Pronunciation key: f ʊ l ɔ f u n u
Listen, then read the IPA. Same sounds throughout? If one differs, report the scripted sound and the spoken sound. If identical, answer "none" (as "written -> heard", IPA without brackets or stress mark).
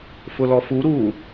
n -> ɾ